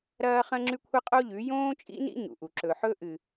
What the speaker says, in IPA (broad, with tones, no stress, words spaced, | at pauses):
ɾɐː˦χɐ̃˦ŋ͡ǁʉ˦ kʷʰɐ˦qʼo˦ʎʉ˨˦ jõː˦t͡ʃʼḭ˦nḭ˦ ɲṵ˨ʔu˨ ǁɵ˨ħɵ˦ʔɨ˨